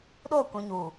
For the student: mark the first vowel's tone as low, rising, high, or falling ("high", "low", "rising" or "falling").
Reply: falling